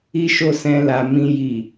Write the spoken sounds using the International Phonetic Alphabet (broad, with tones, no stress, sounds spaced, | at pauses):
i˦ ʃ o˦˨ s ɛ̃˧ l a˨ m ĩ˧ j i˨